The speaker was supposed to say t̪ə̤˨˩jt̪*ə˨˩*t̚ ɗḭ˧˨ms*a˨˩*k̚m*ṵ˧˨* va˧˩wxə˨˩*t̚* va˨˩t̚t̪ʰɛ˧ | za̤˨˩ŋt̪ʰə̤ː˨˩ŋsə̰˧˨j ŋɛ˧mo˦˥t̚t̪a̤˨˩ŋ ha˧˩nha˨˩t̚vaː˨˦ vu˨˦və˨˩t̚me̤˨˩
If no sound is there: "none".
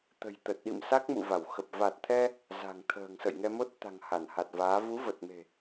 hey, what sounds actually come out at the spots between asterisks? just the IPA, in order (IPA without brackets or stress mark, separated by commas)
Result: ə˨˩, a˦˥, ṵ˧˨, p̚